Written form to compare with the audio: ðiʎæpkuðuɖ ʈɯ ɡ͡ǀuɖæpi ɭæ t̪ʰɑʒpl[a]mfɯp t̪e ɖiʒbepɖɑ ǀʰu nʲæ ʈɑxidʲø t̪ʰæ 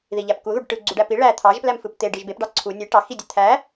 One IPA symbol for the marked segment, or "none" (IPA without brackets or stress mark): æ